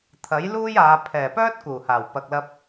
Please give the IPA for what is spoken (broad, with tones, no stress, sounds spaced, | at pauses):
t̪ʰ ɐ˨˥ j l uː˥ j aː˨˧ pʰ ɛː˨˩ p œː˥ t̚ k uː˨˩ h aː˨˩ w p ɐ˨ k̚ l ɐ˧ p̚